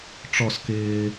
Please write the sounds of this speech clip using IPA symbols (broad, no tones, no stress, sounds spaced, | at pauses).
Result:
ʈ͡ʂ ɔ s k ɪː